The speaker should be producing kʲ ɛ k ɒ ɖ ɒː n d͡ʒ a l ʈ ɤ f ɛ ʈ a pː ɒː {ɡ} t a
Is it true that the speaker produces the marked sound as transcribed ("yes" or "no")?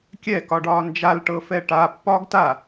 yes